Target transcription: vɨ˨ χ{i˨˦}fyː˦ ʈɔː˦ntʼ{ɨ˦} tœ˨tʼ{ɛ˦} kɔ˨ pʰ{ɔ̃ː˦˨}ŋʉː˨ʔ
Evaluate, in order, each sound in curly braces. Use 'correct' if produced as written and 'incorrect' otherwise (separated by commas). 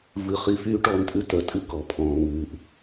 correct, incorrect, incorrect, incorrect